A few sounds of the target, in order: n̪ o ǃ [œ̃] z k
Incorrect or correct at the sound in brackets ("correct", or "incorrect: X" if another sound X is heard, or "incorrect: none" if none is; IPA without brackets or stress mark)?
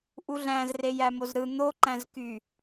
incorrect: æ̃